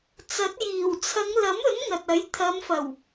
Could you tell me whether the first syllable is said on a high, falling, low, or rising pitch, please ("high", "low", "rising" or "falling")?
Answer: rising